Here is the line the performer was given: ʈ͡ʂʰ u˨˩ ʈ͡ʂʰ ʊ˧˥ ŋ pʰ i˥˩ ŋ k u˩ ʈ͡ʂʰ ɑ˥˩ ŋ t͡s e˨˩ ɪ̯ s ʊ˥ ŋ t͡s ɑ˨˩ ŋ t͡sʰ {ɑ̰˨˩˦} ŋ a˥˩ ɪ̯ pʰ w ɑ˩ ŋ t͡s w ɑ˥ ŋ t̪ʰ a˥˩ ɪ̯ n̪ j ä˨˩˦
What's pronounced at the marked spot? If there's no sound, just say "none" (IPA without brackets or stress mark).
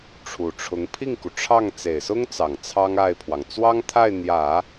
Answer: ɑ˥